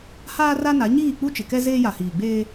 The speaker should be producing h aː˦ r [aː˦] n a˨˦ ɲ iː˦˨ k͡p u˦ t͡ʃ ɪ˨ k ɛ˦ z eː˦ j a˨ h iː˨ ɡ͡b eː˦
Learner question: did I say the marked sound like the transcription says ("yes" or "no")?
no